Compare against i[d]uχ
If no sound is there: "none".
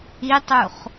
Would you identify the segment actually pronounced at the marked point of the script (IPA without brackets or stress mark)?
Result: tˤ